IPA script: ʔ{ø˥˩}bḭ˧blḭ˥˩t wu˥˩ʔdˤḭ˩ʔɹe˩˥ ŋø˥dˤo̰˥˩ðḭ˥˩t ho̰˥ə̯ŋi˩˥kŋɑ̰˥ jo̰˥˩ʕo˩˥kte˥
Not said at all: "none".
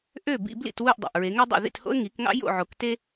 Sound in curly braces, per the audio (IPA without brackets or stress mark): ø˥˩